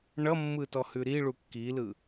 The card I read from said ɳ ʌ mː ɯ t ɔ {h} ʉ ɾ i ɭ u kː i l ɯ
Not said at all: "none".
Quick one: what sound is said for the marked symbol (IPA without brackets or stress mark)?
h